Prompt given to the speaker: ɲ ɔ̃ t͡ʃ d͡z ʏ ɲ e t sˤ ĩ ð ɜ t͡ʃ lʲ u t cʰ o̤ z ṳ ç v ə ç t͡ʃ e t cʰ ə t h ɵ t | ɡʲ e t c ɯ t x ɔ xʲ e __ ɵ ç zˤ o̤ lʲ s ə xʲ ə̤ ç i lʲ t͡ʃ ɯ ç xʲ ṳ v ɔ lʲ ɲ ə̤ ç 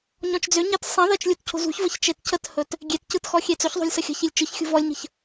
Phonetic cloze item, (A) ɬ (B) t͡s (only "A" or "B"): B